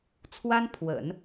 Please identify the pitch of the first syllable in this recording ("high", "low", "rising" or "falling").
high